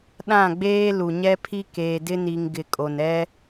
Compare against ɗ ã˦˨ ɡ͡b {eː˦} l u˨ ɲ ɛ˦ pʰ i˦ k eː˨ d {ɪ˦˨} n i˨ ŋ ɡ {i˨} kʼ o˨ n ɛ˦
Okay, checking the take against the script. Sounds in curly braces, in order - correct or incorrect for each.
correct, incorrect: ɪ˦, incorrect: ɪ˨

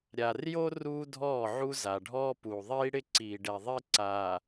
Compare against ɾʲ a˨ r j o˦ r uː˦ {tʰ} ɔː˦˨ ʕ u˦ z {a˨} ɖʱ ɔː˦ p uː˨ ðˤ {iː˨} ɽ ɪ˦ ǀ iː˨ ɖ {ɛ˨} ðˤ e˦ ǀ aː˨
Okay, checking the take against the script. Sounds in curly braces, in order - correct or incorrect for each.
incorrect: dʱ, correct, incorrect: iː˦, correct

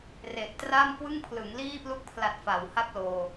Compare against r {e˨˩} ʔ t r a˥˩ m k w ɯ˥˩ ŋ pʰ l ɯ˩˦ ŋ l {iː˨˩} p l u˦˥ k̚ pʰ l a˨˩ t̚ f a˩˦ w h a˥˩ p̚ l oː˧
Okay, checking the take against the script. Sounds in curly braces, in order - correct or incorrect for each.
correct, incorrect: iː˥˩

